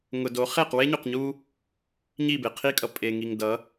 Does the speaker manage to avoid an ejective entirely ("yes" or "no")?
no